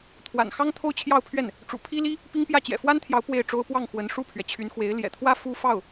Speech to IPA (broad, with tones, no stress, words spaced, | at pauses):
t̪ʰwa̰˨˩n xɑ˥ŋt̪ʰo˥˧ʊ̯t͡ɕʰjɑ˥˧ʊ̯pʰɥɛ˥˩n | ʈ͡ʂṵ˨˩pʰi˥li˥ | pi˥ŋpjä˥˩ t͡ɕjɛ̰˨˩fwa˥nt̪ʰjɑ˧˥ʊ̯ pwe˥˩ɪ̯ʈ͡ʂo˥ʊ̯ pwɑ˥˩ŋxwə˧˥n ʂu˥˩pʰɥɛ˩ t͡ɕʰy˧˥nxwe˧˥ɪ̯ ljɛ̰˨˩t̪ʰwä˥ fu˥ fɑ˥˩ʊ̯